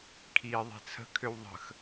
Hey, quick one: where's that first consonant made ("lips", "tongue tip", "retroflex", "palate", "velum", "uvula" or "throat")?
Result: velum